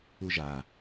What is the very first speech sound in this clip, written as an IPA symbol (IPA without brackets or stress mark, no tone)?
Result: u